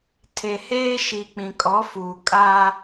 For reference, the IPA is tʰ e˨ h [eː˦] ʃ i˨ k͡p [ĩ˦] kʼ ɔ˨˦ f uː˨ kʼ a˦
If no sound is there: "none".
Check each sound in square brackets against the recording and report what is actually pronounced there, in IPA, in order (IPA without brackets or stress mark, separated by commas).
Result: eː˦, ĩ˨